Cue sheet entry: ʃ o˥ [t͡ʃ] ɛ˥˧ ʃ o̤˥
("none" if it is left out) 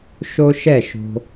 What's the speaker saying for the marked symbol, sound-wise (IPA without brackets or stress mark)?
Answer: ʃ